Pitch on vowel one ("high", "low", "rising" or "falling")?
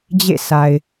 falling